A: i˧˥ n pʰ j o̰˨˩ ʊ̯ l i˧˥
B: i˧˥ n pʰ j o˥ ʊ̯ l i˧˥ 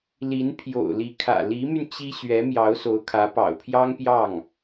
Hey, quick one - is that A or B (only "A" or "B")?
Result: A